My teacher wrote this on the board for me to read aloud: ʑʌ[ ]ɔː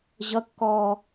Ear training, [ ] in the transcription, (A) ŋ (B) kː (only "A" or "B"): B